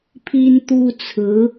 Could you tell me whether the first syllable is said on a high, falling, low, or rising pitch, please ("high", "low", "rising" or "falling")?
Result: high